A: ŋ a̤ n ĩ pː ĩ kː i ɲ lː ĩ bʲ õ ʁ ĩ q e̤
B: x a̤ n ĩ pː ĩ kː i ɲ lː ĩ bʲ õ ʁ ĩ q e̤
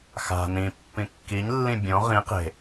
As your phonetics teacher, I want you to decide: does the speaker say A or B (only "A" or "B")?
B